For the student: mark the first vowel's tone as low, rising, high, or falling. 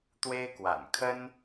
high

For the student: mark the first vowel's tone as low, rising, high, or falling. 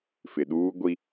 low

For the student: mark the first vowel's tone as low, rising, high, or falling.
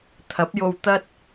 rising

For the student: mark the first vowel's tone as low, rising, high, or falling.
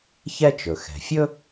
high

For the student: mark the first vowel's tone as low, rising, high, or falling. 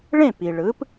falling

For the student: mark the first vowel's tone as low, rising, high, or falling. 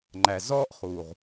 low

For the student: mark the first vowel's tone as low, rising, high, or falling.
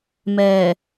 low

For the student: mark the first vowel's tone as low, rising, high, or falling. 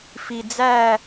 low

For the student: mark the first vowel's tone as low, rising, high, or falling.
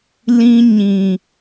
high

